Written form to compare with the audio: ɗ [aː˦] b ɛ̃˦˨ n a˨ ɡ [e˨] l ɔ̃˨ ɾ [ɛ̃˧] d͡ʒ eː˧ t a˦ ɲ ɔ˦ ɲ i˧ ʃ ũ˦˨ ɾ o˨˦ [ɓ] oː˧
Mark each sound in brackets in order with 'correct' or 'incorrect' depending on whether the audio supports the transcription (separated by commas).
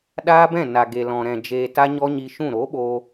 correct, correct, incorrect, correct